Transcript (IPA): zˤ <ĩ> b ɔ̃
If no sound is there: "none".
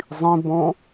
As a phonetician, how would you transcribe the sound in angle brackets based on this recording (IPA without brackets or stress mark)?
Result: ĩ